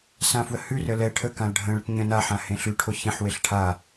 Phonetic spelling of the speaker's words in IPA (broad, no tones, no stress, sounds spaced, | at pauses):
s ã f w ə h ʉ r ə l ɛ ʈʰ ə k ã l ɖʱ ə̃ ɭ ə ʈ ɲ ə̃ n a ħ ã h ẽ ɬ ʉ ʈʰ o ç ẽ ħ w e ɬ ʈʰ a